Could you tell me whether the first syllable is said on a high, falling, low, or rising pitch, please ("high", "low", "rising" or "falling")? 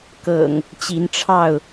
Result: low